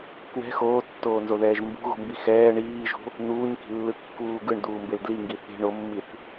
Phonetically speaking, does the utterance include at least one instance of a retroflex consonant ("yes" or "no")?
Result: yes